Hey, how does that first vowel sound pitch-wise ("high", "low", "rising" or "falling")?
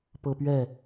high